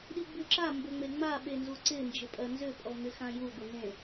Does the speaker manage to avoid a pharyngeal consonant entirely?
yes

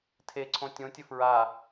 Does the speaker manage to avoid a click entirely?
no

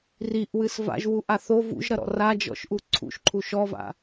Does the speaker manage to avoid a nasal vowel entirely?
yes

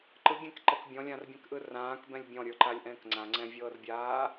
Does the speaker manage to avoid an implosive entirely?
yes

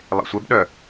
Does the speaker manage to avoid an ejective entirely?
yes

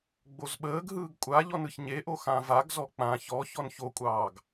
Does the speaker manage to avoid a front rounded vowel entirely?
yes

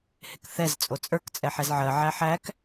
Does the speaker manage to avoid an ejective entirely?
no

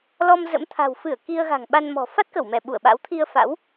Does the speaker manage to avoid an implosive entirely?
no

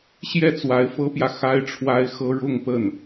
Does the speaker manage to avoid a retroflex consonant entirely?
no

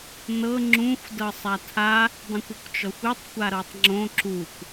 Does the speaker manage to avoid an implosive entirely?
yes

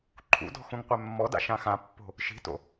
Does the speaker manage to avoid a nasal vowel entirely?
no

